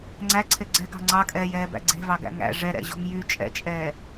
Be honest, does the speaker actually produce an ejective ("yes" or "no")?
yes